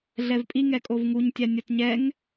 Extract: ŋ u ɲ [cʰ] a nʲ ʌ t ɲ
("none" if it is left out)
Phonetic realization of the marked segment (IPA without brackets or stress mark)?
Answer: tʲ